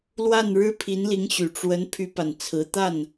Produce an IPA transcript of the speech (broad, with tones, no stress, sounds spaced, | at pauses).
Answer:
l w a˥˩ n ɻ ɻ̩˥ pʰ i˧˥ n l i˧˥ ŋ ɕ y˨˩ ʈ͡ʂ w ə˧˥ n pʰ y˥ p a˨ n t͡sʰ ɹ̩˧˥ t̪ a˥˩ n